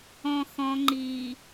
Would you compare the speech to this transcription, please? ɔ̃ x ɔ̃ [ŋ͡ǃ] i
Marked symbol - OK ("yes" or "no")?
yes